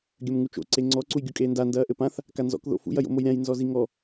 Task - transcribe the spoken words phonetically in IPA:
ɡʲ ɐ m ŋ u t͡ʃ o̰ ǀ e ŋ͡ǀ ɔ ǀ u j ɡʲ u kʼ eː n d a n d ɐː ʔ ɘ p ã θ | k a n z ɔ̰ k ð o̰ f ṵ j ɐ j o̰ m o j ɾʲ ã j n z ɔ z i ŋ ɔ

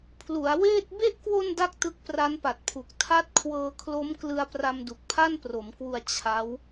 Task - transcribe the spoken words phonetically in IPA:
pʰ l u˩˦ a̯ w eː˥˩ t̚ b e˦˥ ʔ k w o˧ n d a˥˩ k̚ t ɯ˦˥ k̚ p r a˦˥ n p a˨˩ t̚ pʰ u˨˩ k̚ tʰ a˦˥ t̚ kʰ w ɤː˧ kʰ l o˦˥ m k l ɯ˧ a̯ p r a˧ m d u˨˩ k̚ pʰ a˥˩ n p r o˩˦ m k w u˧ a̯ t͡ɕʰ a˦˥ w

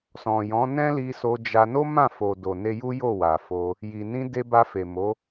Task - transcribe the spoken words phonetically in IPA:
s ɔ̃˨ j ɔ̃˨˦ n ɛ̃˦ l i˧ s o˧ d͡ʒ a˧ n o˦ m ã˦˨ f o˨ d o˨ n e˧ j u˦ j o˦˨ w a˨ f o˧ | j i˨ n ĩ˧ d e˧ b a˧ f e˨ m o˨˦

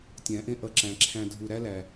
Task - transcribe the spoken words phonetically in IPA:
tʲ æ̃˨˦ ʔ ẽ˦ ʔ ʌ˧ ǁ æ̃˨ ǁʰ æ̃˧ dʱ u˧ ɾ æ˦ l æ˨

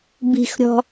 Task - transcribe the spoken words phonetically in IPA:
b i̤ x ɾʲ ɔ̤

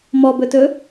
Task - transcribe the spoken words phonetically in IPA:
m ɔ b ɵ t ɵ

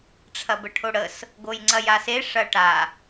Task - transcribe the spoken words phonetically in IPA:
ʈ͡ʂʰ ɐ b ə ʈʰ o ɽ ə s | ɡ o j ŋ͡ǀ ɐ j a s e ʂ ɐ ʈ a

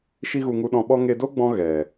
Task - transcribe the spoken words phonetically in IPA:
ʃ i˦ ɣ u˧ ŋ u˧ ɗ ɔ̃˧ ɓ ɔ˦ ŋ e˧ d o˦ ɡ͡b ɔ̃˧ ɣ ɛ˨

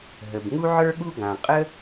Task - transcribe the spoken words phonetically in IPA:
ɦ ə˩ b ŋ u˥ ʕ ə˞˥ ɠ u˥ ɡ ã˩ qʼ ə˥

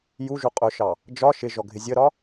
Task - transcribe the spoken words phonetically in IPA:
j u ʒ u qʼ ʊ ʃ ɑ | d͡ʒ ɒ ʃ ɪ ʒ ɔ ɡʱ ɪ zʲ ə ɾ ɒ

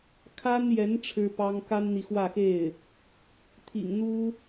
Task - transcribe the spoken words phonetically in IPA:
kʰ a˥ n j ɛ˧˥ n ʈ͡ʂʰ ɻ̩˥ p ɑ˥ ŋ k a˥ n n̪ i˨ x w ä˥˧ x e˥˩ ɪ̯ | t̪ʰ ḭ˨˩ ŋ n̪ u˥

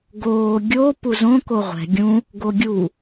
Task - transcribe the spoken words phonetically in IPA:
ɡ oː ɡʲ o p u z õ k o ʁʷ ɛ̤ ɡʲ ũ | ɡ o ɡʲ u

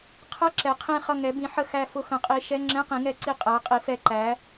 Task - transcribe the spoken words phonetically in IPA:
qʰ ʌ˧˥˧ ǁ ɛ˩˧ qʰ ĩ˧˩ χ ʌ˧˩ ŋ ɛ˩˧ b ĩ˩˧ ħ ə˧˩ x æ˧˩ f ʊ˧˩ x ə̃˩˧ qʼ i˩˧ ʃ ɛ˧˥˧ ŋ͡ǁ ɛ̃˧˥˧ q ĩ˩˧ ŋ ɛ˧˩˧ ǀ i˧˩ qʼ æ˩˧ qʼ i˩˧ f ɛ˧˩ ǃ æ˩˧

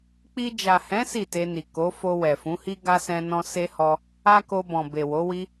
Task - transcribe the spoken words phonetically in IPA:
k͡p i˧ d͡ʒ a˨ h ɛ̃˨˦ s i˦˨ t e˧ n i˨ k o˨˦ f o˧ w ɛ˨ f ũ˨˦ h i˦ ɡ a˦ s ɛ̃˧ n ɔ̃˧ s e˦ h ɔ˧ | a˦ k o˧ b ɔ̃˨ b e˨ w o˨˦ w i˦

